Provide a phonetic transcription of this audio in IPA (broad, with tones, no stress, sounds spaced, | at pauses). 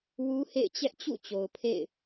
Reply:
w u˦ h ḛ˦˨ ɪ̯ t͡ɕ ɛ˦ ʔ t͡ɕ ṵ˦˨ t͡ɕ o˨ ʊ̯ pʰ ḛ˦˨ ɪ̯